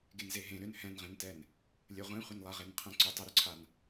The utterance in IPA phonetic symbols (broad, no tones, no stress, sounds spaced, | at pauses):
ɡ e n z e ɦ ẽ ɾ ʏ n h ɛ̃ n ʁ ẽ n t ɛ n | lʲ ə ʁʷ ẽ χʷ ə n lˠ a ʁ e n qʰ ɛ̃ ǀ ʏ tˤ ə ɾ ʏ ǀʰ a n